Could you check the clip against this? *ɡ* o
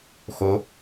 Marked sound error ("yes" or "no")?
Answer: yes